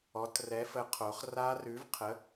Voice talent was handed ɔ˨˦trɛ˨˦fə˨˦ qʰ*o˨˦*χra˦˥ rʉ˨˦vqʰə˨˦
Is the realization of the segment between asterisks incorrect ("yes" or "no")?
no